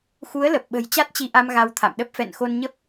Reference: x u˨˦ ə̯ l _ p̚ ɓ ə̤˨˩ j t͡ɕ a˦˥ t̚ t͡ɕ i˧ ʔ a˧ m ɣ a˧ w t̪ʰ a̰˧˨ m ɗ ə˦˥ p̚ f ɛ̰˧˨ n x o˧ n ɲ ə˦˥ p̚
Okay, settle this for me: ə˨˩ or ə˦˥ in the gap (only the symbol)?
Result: ə˨˩